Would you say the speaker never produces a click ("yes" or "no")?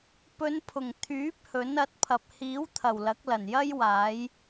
yes